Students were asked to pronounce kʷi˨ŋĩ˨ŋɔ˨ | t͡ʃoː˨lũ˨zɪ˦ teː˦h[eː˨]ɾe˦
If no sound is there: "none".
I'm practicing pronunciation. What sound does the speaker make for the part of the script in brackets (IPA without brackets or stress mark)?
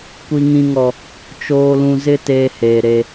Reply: eː˨